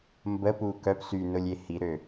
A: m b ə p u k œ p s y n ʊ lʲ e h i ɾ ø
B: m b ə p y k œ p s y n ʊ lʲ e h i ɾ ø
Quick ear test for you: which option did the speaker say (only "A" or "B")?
A